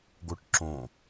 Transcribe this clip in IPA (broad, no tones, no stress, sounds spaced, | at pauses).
ɡ o ʈ ǁ õ